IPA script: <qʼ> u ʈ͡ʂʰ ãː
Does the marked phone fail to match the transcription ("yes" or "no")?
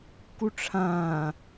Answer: yes